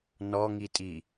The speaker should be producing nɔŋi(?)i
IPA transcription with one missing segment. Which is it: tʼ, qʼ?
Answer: tʼ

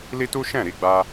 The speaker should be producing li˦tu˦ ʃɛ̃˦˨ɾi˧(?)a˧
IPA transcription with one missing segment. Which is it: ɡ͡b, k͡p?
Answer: ɡ͡b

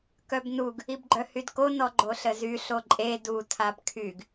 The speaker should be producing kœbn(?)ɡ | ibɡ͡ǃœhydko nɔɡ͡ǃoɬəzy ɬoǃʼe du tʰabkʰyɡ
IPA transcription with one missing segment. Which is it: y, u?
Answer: u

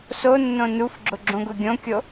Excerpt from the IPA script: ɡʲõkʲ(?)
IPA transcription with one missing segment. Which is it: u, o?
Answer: o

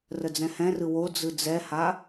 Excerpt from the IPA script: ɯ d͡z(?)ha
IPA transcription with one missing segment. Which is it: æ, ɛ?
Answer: ɛ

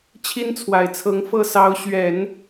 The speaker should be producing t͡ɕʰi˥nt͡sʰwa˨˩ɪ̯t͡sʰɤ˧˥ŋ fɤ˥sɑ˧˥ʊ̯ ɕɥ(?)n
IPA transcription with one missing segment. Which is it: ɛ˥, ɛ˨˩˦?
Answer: ɛ˨˩˦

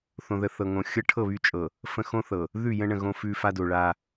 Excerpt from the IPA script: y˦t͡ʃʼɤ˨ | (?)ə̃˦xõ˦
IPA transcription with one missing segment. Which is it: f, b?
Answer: f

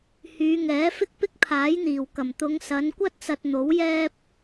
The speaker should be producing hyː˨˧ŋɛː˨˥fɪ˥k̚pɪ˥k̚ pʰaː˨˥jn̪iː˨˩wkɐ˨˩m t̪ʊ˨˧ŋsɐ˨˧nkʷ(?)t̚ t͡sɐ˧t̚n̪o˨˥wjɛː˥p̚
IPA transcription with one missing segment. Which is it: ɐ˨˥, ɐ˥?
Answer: ɐ˥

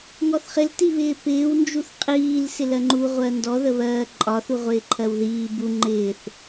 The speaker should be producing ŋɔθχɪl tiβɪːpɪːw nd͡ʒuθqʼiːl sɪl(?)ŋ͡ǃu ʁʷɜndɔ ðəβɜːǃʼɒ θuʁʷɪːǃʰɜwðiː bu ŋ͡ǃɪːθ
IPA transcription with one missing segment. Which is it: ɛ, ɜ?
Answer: ɜ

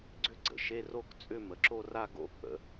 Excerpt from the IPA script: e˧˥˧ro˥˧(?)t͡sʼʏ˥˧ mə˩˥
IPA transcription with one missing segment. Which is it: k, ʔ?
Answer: k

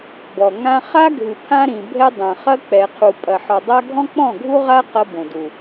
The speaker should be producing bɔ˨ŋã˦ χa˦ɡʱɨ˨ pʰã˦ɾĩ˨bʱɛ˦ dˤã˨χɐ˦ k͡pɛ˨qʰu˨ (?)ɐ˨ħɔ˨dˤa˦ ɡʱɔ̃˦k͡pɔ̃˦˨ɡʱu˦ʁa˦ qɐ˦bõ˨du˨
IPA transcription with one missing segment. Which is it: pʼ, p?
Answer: pʼ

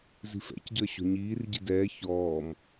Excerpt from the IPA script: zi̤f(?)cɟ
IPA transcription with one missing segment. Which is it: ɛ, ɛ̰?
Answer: ɛ̰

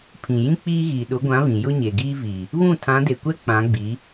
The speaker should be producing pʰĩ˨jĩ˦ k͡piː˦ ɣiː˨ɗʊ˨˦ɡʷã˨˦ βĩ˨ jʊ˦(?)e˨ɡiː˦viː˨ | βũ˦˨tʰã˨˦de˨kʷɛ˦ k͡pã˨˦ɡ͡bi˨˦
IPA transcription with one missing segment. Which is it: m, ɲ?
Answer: ɲ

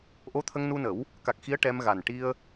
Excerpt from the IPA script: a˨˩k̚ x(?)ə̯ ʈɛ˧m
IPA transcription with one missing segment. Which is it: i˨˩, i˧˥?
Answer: i˧˥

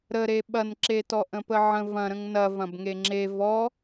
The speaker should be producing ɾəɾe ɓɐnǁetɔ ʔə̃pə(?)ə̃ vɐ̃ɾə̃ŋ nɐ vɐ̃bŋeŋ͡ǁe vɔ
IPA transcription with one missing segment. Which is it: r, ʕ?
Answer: ʕ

